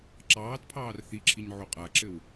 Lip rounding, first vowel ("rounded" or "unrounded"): unrounded